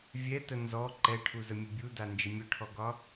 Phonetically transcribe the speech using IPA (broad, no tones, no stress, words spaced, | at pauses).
vʲɛtə nzɔ ǃɛʈʰuzəmʲə bʲudand͡ʒə mʲʊʈʰɔɡɒ